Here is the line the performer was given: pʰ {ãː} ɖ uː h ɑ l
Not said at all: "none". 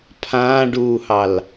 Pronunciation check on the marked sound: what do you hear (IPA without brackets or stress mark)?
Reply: ãː